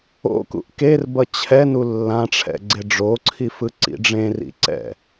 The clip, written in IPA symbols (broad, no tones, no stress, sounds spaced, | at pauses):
o̰ k ṵ ʔ k e r b ʌ t͡ɕʰ ɛ n u lː ã ʈ͡ʂʰ ɛ̰ ɡ͡ǀ e ɖ͡ʐ o ǀʰ i f ɯ ǀ ḭ ɖ͡ʐ ẽ r ḭ ǀ ɛ̰